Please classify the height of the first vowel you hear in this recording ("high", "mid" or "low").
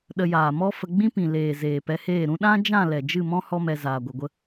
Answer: mid